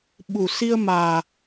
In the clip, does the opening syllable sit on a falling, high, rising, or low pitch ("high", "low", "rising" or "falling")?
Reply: low